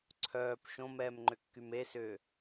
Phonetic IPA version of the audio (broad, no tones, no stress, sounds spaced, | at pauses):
ǀʰ œː p ʃ õ m ɛː m ŋ͡ǃ ʏ kː y m e s ʏː